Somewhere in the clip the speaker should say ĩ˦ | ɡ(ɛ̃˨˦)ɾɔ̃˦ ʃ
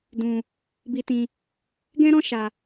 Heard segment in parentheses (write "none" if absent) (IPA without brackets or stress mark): ɛ̃˦